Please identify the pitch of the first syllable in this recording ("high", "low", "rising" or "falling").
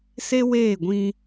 high